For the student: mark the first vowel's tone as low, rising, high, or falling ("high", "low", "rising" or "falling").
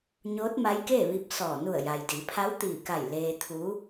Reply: rising